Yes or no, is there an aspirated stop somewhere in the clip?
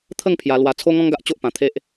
yes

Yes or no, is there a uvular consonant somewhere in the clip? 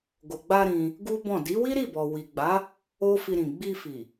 no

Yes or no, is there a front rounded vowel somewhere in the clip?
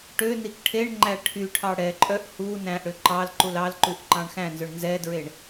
yes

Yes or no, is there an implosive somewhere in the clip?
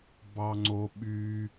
yes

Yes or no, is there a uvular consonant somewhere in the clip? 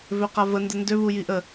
yes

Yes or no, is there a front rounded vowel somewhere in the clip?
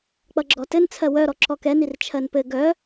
yes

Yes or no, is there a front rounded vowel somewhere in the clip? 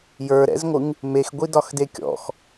no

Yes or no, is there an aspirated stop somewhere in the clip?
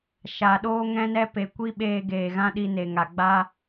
no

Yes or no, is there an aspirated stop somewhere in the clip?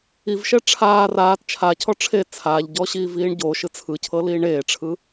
yes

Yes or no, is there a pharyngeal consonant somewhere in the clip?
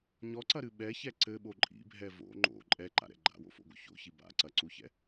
no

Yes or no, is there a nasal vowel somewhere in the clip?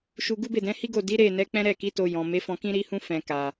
yes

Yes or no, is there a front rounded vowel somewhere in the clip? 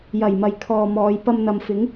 no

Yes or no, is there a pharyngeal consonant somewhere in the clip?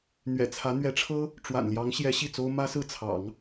no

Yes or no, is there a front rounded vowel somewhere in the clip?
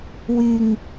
yes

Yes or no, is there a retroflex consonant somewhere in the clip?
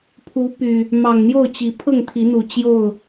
no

